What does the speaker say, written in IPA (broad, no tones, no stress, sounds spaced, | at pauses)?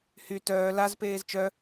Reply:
h y t œː l a z p eː z t͡ʃ œ